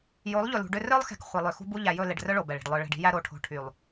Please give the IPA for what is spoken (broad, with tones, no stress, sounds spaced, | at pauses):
j o˨˦ lˠ ʎ ɵ˨ l ṳ˨ ɖ ø˦ r œ˦ lˠ x ɛ̤˨ k χʷ e˨ lˠ ø˨ x ṳ˦ b u˦ ʎ æ˨ j ɵ˦˨ l e˨ ɖ r œ˦ ɭ o˨ b ɛ˨ ɭ i̤˨ ɖ lˠ œ˨ ɭ ɛ̤˨ ɖ i̤˦ j æ˦ ɾ o˨˦ ʈʰ o̤˨ ʈʰ y˨ lˠ